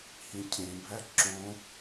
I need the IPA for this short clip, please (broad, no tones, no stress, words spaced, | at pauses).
hĩcʰẽbʱæ ǁõ